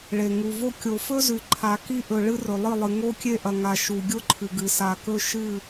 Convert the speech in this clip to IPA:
ɭe˨ŋu˨vo˦ kʲo˨fɵ˦zʉ˨ ǃʰa˨ki˦ʔɵ˨ ɭɨ˦rɵ˨lˠɨ˦˨lˠɨ˨ ŋo˦kʲe˦ʔɐ˨ŋa˨ ʃu˨ ɡʲo˦ǃʰɨ˨ɡɨ˨ sa˨kɵ˦ ʃɨ˦˨

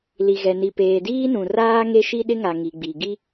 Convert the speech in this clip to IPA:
li˨ɣɛ˨ni˨ peː˨diː˦nũ˨raː˦ ŋe˦ʃi˦ɗɪ˦ŋa˨ ŋi˨ɡ͡bi˨ ɡi˦

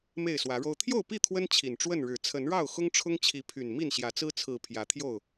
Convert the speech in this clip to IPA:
me˥˨ɪ̯swä˨˦ɻo˦ʊ̯ t̪ʰjo˥˨ʊ̯pi˥˨ t̪ʰwə˦n t͡ɕʰi˨˩nʈ͡ʂwə˥˨nɻɻ̩˨˩ t͡sʰə˨˦nɻɑ˥˨ʊ̯ xʊ˦ŋʈ͡ʂʰʊ˦ŋt͡ɕʰi˨˦ pʰy˨˩n mi˥˨nɕjä˨˦t͡sɹ̩˦ t͡sʰɹ̩˨˩ pʰjä˨˦t̪ʰjo˥˨ʊ̯

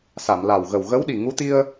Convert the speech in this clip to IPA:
sa˨˩˨mla˨˩wɣə˨˩w ɣə˧˥wɗi˨˩ŋu˧˥t̪i˧ə̯

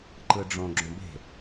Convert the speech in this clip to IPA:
ǃɯɖ͡ʐõ ɡ͡ǁõbe̤

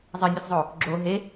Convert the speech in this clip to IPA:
zˤenʲɯszˤo | ɡ͡ǁo ɦe

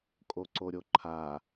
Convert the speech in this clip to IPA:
kʼoǀoɾʲoǃʰa

